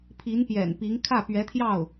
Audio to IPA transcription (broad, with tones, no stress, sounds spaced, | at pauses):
pʰ i˧˥ n p j ɛ̰˨˩ n p i˧˥ ŋ kʰ ä˥˩ p ɥ ɛ˧˥ t̪ʰ j ɑ˥˩ ʊ̯